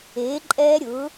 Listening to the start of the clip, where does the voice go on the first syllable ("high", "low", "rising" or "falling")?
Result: rising